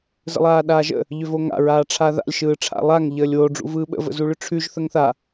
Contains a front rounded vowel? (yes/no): yes